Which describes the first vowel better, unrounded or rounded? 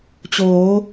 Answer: rounded